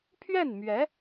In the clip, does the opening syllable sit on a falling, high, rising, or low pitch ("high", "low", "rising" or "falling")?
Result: falling